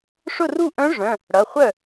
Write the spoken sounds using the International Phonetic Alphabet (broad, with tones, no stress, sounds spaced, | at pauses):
ʂ ʊ˥˩ r u˥˩ ʔ œ̃˧˥ ʐ œ̃˩˧˩ | ɽ ʌ˩˧˩ χʷ œ˥˩